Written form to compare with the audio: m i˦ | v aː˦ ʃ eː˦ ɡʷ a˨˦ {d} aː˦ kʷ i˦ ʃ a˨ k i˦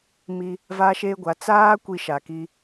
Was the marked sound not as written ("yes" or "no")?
yes